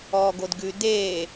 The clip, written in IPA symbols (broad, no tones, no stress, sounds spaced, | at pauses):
ɔː ɡ o d ɡ ʉ d eː